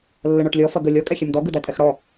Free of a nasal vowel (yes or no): yes